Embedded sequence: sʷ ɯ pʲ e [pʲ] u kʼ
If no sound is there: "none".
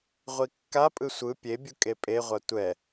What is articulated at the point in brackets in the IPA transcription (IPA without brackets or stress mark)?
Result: bʲ